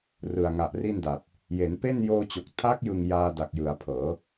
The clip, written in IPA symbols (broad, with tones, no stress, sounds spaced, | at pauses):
r ɯ˨˩ a̯ ŋ a˨˩ ʔ r i˥˩ n d a˨˩ t̚ | j e˩˦ n p e˥˩ n j oː˧ t͡ɕ o˨˩ k̚ tʰ a˦˥ k̚ j ɯ˨˩ ŋ j aː˧ d a˨˩ k̚ j ɯ˩˦ a̯ pʰ ɤː˩˦